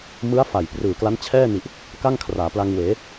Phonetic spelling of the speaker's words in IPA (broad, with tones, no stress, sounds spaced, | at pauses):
m ɯ˦˥ a̯ f a˨˩ j p r ɯː˨˩ k l a˦˥ n t͡ɕʰ ɛː˥˩ n i˨˩ ʔ | k a˥˩ ŋ kʰ r aː˩˦ p l a˧ ŋ w eː˩˦